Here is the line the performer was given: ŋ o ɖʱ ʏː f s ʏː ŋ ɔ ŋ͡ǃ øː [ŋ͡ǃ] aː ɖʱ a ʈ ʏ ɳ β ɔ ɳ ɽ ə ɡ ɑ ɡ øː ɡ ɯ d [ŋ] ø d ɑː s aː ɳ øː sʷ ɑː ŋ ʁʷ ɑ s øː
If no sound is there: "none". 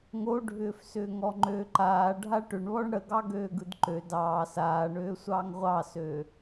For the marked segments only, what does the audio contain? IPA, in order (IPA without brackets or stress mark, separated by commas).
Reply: ǃ, ǃ